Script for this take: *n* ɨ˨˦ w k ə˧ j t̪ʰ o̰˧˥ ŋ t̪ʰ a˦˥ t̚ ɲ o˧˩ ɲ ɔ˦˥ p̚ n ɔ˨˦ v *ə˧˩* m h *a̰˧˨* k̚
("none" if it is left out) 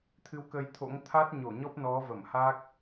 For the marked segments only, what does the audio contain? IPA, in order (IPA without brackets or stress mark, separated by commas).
t̪ʰ, ə˧˩, a˦˥